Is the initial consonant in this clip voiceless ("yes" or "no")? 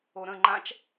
no